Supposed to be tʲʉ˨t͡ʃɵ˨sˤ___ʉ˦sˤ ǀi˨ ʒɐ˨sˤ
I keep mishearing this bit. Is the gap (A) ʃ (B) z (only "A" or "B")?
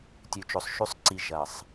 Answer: A